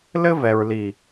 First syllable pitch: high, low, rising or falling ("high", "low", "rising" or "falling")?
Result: high